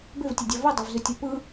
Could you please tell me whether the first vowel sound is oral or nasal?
oral